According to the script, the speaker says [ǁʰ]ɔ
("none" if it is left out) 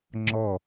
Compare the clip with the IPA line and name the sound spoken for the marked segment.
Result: ŋ͡ǁ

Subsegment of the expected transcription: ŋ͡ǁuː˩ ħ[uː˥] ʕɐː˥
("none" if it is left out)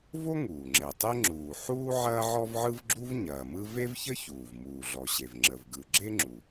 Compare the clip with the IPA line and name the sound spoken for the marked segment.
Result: uː˥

